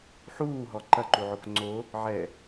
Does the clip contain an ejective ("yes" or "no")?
no